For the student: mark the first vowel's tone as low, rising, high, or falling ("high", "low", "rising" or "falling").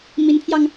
rising